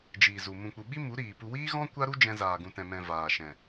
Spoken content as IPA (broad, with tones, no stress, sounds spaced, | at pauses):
d͡ʒ iː˨ z u˨ m ũ˨ k͡p u˨ ɓ i˦ m u˨˦ ɾ iː˨ p u˧ w iː˦ ɣ ɔ̃˦ kʷ a˦ ɾ u˦ d͡ʒ ɛ̃˧ z aː˨ ɡ ũ˨ t ɛ̃˨ m ɛ̃˨ v aː˨ ʃ ɛ̃˨